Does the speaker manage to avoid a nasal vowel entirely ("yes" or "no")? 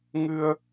yes